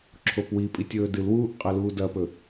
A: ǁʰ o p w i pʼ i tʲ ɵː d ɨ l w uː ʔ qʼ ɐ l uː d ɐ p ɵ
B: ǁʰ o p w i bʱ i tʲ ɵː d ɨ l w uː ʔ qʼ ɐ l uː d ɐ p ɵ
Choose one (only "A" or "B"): A